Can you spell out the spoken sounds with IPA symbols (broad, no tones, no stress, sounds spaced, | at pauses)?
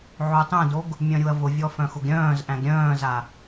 ʕ o tˤ œ̃ d o ɡ | mʲ œ̃ ɾʲ u ɐ̯ v ʊ vʲ ɔ f œ̃ x ʊ ɡ ɾʲ œ̃ː z ʔ æ̃ ɡ ɾʲ œ̃ː z a